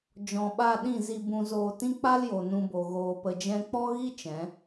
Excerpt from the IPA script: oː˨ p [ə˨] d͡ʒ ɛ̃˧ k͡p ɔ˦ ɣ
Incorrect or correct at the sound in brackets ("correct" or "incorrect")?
correct